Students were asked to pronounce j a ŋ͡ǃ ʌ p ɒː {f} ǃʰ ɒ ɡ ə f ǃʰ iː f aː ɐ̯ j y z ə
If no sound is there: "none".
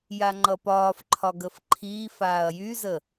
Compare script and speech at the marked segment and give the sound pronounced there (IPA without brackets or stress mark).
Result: f